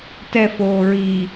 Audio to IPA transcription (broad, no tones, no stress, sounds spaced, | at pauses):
t ɛ f oː ɹ i